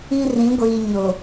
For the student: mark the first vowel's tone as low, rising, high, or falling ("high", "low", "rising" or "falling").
high